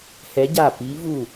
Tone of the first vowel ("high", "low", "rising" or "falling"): rising